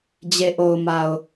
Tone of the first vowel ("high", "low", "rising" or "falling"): low